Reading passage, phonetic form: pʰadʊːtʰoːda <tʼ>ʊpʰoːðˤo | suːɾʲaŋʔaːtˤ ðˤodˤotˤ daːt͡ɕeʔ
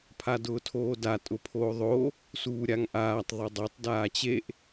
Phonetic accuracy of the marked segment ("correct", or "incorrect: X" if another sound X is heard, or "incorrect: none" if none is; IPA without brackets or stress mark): correct